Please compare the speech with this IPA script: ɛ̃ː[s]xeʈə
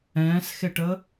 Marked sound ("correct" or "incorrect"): correct